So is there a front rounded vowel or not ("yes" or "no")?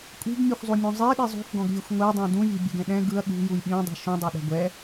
no